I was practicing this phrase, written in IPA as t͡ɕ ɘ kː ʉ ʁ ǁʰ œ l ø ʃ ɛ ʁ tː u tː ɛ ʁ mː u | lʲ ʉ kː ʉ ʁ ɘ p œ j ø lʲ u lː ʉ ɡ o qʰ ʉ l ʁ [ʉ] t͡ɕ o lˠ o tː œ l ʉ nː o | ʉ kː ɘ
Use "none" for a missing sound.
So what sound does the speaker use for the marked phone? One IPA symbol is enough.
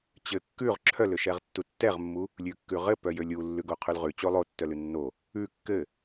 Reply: ʉ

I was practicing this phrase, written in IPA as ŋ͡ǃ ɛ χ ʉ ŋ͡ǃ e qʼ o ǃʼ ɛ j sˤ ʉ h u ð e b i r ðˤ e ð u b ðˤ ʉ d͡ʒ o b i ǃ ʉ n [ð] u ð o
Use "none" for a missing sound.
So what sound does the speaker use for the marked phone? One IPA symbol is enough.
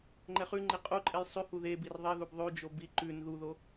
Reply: ð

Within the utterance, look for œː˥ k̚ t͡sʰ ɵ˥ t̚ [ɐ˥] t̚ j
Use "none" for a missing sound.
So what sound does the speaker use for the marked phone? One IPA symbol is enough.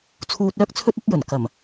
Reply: ɐ˥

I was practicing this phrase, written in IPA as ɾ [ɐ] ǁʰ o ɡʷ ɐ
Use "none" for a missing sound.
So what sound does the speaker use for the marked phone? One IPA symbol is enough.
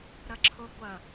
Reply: ɐ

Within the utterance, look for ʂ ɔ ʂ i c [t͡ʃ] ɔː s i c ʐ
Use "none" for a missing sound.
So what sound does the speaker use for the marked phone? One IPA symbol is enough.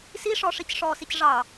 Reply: ʂ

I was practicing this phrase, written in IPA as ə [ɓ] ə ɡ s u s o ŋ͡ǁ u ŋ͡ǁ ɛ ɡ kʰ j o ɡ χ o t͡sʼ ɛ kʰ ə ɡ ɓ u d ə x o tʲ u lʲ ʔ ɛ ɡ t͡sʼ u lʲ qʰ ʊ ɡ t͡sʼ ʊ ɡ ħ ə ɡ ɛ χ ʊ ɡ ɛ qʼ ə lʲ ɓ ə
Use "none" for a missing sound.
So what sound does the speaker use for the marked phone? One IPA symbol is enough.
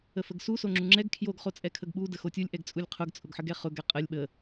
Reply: f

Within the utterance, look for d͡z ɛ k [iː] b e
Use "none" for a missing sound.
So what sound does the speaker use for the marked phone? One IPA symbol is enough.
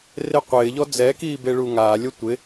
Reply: iː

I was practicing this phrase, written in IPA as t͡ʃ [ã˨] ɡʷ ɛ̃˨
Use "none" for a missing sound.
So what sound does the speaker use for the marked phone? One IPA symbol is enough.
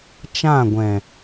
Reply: ã˦˨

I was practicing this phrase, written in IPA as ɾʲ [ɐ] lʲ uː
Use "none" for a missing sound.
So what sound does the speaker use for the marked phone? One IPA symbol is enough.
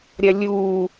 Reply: ɐ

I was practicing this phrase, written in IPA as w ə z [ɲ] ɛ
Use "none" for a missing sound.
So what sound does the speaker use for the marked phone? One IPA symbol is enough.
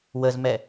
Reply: m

